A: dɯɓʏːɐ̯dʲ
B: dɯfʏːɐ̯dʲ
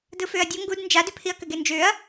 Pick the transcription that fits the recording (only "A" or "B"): B